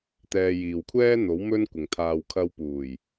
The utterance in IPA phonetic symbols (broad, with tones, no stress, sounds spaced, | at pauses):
t̪ ɛː˧ j iː˨ w kʷʰ ɛː˥ n̪ o˨˥ w m ɵ˥ n kʷ ɪ˨ ŋ t̪ʰ aː˨ w kʰ ɐ˧ w p uː˨˩ j